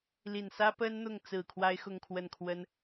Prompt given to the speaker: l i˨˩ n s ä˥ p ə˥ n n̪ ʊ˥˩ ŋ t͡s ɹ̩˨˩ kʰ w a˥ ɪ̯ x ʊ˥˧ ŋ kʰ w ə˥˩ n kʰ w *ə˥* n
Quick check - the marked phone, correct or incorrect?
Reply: correct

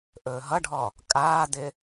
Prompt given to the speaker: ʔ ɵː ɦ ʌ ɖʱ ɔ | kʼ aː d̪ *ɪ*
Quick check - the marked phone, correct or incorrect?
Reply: correct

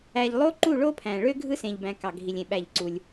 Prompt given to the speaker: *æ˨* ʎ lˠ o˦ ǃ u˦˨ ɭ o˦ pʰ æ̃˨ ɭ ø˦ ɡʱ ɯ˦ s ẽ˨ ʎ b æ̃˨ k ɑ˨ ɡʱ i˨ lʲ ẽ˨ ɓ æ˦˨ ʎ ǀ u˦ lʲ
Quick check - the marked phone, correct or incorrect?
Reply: correct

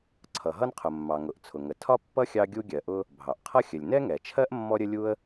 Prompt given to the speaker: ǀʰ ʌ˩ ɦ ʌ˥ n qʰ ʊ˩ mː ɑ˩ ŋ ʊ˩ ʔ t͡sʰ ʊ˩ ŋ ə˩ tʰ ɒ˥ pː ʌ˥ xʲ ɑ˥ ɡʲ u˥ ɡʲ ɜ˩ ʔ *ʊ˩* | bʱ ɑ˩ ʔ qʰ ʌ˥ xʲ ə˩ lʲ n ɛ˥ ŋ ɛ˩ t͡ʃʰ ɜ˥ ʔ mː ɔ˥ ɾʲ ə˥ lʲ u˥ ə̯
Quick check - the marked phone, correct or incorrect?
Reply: incorrect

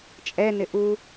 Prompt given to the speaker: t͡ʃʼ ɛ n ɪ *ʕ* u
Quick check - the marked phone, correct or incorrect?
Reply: incorrect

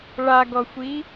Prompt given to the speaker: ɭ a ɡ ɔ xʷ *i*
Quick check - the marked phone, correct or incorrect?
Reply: correct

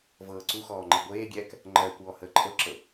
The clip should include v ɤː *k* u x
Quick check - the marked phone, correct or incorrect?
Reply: incorrect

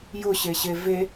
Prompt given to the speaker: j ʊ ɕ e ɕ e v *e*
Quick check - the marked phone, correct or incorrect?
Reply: correct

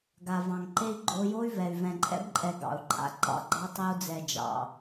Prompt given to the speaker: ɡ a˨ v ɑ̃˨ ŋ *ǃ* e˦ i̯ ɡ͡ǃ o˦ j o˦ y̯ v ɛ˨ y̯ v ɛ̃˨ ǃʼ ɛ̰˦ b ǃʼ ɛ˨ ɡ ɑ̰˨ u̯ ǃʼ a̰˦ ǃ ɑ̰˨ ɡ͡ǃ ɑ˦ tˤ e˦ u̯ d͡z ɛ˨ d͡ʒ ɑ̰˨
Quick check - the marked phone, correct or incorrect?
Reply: correct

